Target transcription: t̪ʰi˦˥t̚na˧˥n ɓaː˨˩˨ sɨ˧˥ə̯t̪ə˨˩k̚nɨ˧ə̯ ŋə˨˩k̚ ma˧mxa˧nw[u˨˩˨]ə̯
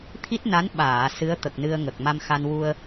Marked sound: incorrect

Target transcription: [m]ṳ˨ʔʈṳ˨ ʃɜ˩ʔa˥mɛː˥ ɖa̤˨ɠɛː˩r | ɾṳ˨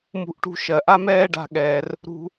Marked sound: correct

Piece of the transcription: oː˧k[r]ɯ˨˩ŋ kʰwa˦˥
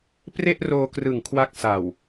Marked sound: correct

